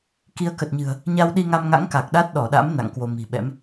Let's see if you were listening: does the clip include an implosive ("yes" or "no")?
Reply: yes